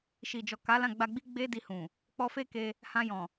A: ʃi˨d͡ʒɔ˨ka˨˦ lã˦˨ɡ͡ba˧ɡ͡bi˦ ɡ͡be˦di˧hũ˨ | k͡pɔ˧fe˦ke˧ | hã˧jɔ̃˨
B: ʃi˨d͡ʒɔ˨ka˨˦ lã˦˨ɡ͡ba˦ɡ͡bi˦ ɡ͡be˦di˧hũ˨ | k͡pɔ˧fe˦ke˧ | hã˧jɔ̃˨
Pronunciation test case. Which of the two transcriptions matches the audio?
A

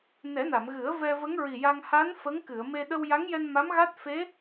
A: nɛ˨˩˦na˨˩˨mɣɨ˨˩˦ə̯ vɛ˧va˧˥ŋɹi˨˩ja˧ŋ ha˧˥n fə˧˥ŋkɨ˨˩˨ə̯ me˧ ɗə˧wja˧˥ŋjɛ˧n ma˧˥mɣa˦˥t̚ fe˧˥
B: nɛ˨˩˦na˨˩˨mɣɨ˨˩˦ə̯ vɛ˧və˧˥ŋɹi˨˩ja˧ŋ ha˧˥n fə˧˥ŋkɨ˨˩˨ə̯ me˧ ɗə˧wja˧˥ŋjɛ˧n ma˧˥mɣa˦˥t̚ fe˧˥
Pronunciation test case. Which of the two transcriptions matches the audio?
B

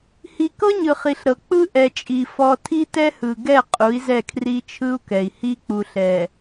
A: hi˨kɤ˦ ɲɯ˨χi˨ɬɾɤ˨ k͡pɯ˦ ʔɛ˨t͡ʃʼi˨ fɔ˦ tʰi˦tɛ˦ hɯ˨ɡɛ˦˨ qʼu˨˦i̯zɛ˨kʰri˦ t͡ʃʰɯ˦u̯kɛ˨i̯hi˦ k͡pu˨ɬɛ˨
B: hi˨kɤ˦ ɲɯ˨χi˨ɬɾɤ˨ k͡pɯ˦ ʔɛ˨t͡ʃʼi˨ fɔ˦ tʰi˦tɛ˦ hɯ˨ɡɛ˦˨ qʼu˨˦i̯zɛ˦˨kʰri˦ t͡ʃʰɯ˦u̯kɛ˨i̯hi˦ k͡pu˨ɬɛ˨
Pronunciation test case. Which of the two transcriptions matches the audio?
B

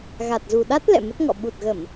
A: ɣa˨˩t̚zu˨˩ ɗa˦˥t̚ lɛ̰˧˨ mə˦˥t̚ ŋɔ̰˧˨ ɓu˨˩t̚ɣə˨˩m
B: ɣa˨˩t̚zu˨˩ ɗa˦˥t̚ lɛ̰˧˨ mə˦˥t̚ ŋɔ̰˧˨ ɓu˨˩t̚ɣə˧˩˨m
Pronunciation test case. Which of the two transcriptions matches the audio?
B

